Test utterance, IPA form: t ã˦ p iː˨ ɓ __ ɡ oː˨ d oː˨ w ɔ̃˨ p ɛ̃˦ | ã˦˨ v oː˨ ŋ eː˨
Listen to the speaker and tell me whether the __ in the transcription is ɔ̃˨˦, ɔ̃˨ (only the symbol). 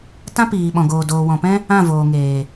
ɔ̃˨